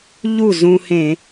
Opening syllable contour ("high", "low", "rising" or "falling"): falling